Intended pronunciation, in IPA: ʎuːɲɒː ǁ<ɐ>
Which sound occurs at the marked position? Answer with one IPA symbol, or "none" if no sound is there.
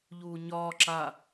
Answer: a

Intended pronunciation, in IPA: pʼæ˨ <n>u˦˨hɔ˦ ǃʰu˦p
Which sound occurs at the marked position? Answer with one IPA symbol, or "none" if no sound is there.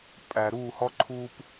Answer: ɾ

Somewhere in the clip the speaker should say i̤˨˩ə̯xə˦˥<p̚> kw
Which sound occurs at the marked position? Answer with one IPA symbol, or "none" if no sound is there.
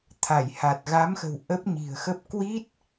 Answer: p̚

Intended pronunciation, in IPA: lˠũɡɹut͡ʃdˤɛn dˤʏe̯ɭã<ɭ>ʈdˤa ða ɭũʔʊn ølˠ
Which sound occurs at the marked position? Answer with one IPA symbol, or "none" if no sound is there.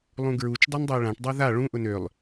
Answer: none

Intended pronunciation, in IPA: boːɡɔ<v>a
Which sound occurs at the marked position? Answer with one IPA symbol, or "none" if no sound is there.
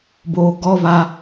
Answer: v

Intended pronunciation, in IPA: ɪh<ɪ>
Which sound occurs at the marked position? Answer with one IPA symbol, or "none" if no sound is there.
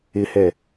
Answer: ɛ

